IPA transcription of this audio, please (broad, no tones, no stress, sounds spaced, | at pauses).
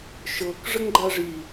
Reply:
ʃ ɤ k ʐ ə ŋ ɡ͡ǃ a ʐ i